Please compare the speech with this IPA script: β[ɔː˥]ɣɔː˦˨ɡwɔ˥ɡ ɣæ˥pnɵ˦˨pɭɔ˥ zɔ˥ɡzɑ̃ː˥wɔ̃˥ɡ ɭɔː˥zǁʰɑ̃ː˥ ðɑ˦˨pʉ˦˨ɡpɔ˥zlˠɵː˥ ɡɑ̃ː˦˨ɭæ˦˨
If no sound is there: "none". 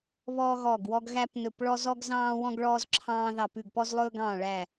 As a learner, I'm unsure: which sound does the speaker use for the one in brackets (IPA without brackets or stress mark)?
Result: ɔː˥